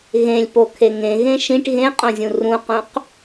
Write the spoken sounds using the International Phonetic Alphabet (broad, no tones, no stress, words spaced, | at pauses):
ɣẽlʲpokʰe ŋẽɣẽ ʃĩʈ ɣẽqʼõzʲũ rũqũq